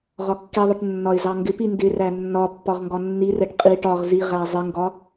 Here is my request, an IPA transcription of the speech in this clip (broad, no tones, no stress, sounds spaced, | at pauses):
ʁ ɒ kː i ðˤ ɪ ʈ nː ɒ ɪ̯ z ɑ ŋ ɡ ɪ p i n d ɪ r æ nː ɒ pː ɒ ʁ ŋ ɡ ɒ nː i r ɛ ʈ qʼ i ʈ ɒ ʁ z i ʁ æ zˤ ɪ ŋ ɡ ɒ